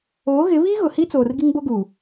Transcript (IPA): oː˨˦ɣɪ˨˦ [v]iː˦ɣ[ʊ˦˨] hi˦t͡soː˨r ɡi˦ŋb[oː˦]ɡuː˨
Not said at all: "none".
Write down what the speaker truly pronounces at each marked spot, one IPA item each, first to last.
β, ʊ˨, o˦

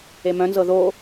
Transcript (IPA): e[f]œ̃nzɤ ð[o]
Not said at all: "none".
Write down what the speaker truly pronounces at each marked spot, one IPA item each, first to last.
m, o

